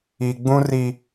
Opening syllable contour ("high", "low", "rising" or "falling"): low